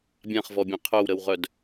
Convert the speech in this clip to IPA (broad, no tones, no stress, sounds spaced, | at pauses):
bʲ ã χ v ɔ bʲ ẽ qʰ œ w ɾ ə w ʁ œ d